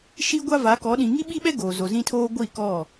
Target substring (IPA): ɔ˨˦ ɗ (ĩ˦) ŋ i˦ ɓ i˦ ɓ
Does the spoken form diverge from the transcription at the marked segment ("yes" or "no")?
yes